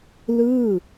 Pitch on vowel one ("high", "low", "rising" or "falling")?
falling